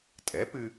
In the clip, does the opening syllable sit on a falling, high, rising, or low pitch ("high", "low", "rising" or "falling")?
rising